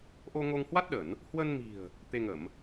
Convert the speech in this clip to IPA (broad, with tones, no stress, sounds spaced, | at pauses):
ʔ o˧ ŋ o˧ ŋ h w a˦˥ t̚ ɗ ə˧˩˨ n | h w ə˧ n m i̤˨˩ ə̯ | t̪ e˧ ŋ ə˧˩˨ m